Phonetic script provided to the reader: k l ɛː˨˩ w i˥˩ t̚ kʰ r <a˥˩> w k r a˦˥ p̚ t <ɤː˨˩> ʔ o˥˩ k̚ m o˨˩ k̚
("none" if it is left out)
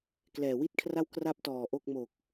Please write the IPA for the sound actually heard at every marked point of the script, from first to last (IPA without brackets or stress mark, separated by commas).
a˥˩, ɔː˨˩